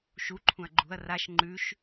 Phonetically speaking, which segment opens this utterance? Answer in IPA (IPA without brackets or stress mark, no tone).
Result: ʃ